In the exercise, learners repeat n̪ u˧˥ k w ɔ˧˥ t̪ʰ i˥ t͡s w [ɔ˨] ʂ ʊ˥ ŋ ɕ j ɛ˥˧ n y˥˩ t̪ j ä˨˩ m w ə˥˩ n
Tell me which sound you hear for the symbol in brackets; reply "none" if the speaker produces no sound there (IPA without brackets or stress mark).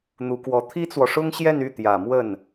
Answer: ɔ˨